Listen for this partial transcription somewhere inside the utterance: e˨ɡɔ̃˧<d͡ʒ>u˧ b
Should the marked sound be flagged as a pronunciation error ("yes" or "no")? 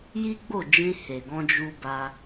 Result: no